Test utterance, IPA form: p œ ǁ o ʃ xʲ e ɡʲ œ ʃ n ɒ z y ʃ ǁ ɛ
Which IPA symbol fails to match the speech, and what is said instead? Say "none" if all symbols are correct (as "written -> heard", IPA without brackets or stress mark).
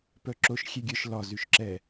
n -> l